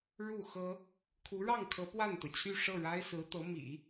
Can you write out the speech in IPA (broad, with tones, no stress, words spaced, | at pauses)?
ɻu˥˩ xɤ˥ | kʰu˧˥ɻɑ˥˩ŋkʰɤ˧˥ pwa˥˩nt̪ɤ˩t͡ɕʰy˥˧ ʂɤ˥˩ɻa˥ɪ̯sɹ̩˧˥t̪ɤ˧˥ mḭ˨˩˦